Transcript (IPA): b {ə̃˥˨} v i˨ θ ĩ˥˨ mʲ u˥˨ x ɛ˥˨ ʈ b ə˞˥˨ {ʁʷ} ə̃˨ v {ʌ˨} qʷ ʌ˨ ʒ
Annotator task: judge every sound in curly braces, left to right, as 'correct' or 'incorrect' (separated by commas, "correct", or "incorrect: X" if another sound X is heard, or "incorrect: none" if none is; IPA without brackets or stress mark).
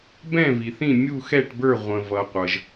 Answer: incorrect: ɛ̃˥˨, correct, correct